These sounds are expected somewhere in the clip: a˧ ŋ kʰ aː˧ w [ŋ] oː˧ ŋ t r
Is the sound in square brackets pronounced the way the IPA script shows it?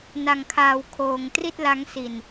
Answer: no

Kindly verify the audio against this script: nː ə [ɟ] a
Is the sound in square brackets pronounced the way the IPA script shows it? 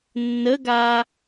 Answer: no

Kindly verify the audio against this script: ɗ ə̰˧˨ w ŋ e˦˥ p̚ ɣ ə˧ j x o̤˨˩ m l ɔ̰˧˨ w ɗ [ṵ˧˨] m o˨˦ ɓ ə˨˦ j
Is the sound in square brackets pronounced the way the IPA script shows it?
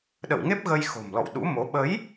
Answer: no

